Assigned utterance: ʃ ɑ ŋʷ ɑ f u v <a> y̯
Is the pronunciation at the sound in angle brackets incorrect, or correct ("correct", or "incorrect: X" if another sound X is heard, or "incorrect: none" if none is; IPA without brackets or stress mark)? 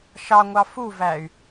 incorrect: æ